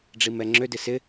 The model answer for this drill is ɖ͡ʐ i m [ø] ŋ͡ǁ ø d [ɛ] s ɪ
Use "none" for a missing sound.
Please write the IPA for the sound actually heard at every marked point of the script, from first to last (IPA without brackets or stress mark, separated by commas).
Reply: ɛ, ɪ